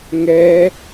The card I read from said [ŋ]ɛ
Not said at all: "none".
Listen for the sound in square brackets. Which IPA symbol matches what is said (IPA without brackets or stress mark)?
ŋ